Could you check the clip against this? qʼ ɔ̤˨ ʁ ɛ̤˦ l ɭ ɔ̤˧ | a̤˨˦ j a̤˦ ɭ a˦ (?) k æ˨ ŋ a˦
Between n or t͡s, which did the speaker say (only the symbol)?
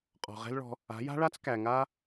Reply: t͡s